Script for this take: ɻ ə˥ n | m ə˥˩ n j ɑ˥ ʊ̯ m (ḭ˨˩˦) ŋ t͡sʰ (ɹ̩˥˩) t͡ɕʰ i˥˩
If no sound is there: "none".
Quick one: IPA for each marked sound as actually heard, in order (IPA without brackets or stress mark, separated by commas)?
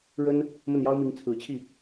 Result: i˧˥, ɹ̩˨˩